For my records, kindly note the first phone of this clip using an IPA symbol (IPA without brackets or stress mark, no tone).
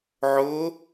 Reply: ʕ